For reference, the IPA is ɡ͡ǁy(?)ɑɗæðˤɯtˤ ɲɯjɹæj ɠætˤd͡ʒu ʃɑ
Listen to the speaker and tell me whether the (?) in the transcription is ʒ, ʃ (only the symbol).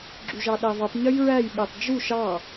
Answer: ʒ